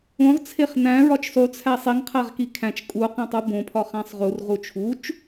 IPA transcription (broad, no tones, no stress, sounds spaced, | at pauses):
õ ʁ t͡sʰ e χ n æ̃ ɹ ɒ t͡ʃ sˤ u t͡sʰ æ sˤ i ŋ qʰ æ ʁ k i kʰ æ̃ t͡ʃ kʼ u q ẽ tˤ u b õ pʰ ɒ χ æ̃ sˤ ʁ u r ʁ u t͡ʃʰ u t͡ʃ